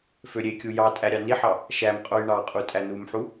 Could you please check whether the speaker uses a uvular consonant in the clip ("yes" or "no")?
yes